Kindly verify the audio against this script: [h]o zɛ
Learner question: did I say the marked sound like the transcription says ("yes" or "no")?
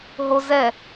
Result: no